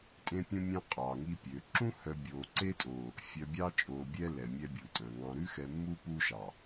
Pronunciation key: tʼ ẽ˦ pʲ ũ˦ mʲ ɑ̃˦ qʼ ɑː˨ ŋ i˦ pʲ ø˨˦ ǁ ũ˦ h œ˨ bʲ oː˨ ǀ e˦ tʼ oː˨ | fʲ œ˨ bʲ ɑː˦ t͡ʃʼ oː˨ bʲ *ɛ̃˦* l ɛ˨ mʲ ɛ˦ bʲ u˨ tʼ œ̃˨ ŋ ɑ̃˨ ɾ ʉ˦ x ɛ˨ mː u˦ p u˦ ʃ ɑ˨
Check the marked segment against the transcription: incorrect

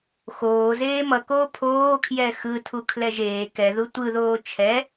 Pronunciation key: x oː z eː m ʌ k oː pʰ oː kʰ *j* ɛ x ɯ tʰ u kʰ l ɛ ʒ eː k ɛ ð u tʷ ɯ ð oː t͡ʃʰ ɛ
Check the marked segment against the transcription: correct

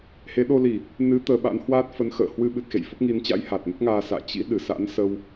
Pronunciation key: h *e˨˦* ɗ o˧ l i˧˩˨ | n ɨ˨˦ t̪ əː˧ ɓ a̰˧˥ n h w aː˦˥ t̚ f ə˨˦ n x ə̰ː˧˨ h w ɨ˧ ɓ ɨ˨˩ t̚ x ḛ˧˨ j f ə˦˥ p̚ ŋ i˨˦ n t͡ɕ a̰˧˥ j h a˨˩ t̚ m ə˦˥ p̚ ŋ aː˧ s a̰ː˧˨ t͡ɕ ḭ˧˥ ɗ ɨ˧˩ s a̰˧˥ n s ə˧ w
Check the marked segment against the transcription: correct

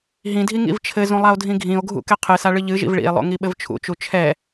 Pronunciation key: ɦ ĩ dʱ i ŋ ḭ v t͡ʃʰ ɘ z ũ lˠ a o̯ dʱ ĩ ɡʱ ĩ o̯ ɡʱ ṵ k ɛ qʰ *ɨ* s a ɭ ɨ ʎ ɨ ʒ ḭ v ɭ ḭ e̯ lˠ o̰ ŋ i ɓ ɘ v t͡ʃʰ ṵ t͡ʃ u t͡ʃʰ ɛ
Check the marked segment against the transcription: correct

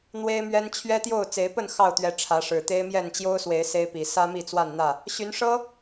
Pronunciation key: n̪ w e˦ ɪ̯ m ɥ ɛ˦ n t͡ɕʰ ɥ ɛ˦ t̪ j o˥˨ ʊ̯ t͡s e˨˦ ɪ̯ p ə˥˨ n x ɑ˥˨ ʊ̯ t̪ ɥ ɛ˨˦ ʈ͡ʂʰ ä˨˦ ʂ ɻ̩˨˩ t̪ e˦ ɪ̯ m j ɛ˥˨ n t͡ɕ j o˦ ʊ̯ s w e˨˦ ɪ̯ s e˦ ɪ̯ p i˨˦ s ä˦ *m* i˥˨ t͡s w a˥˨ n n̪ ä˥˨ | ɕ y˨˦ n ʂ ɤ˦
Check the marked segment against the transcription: correct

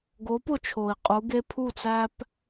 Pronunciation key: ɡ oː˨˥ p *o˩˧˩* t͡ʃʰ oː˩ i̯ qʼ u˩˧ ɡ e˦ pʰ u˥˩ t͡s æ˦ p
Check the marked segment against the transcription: incorrect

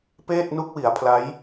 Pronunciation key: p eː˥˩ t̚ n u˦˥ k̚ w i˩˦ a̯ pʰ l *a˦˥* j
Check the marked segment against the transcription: correct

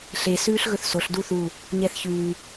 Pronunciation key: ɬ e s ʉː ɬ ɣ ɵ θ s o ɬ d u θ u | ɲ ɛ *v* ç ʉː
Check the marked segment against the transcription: incorrect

